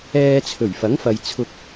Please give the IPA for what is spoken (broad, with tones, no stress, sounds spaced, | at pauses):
ɛː˧ t͡sʰ ɵ˨˩ ɥ f ɐ˨˥ ŋ f ɐ˨ j t͡sʰ ʊ˨ k̚